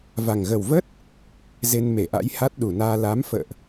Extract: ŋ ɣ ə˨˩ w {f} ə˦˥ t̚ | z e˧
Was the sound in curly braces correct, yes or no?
no